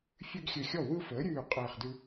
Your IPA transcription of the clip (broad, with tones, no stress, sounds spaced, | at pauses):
fʲ ʉ˦ ɡ xʲ ɘ˧˩ xʲ ɔ˥˩ w ɯ˦ f əː˩˥ ɾʲ ʉː˧˩ qʼ ɘː˧˩ χ d ʉ˦